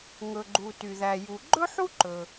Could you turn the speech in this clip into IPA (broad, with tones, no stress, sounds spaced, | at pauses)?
ŋ ɵ˩ ɡ͡ǃ u˩ t y˩ ð æ˩ j u˩ ɡ͡ǃ ɵ˥ ħ u˥ ǃ ɵ˩